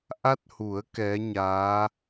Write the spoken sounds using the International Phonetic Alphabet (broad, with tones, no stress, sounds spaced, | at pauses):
ʔ a˦˥ t̚ h u˨˩˦ ə̯ k ɛ˧˥ ɲ aː˧˥